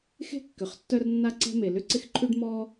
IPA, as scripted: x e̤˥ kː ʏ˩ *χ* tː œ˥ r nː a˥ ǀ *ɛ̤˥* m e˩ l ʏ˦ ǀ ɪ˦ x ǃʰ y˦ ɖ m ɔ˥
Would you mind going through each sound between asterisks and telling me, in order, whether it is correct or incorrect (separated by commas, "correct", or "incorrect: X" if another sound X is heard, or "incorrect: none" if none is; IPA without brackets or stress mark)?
correct, correct